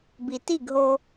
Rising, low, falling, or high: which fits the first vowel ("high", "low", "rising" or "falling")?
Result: low